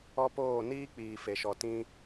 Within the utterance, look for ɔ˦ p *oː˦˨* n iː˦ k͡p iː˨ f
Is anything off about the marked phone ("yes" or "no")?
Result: no